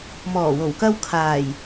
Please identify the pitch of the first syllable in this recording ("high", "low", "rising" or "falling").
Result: low